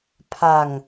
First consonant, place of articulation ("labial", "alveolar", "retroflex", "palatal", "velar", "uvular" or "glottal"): labial